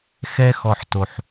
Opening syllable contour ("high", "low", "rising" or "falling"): high